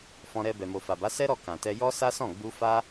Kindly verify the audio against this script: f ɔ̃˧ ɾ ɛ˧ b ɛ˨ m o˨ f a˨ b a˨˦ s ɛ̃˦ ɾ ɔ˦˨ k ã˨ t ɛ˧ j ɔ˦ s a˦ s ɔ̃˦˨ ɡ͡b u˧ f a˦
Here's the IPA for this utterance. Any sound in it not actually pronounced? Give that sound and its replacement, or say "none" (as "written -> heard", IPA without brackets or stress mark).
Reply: ɛ̃˦ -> ɛ˦